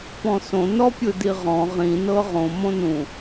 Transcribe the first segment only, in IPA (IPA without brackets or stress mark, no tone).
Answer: p